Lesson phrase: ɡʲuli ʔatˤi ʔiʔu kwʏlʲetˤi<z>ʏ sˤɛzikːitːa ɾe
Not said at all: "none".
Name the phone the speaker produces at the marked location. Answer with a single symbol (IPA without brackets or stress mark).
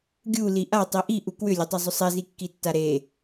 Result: zˤ